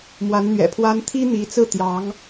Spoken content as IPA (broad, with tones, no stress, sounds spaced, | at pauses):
m w a˧˥ n n̪ ɥ ɛ̰˨˩ pʰ w a˥ n t̪ʰ i˥ n̪ i˧˥ t͡s ɹ̩˥˩ t̪ j ɑ˧˥ ŋ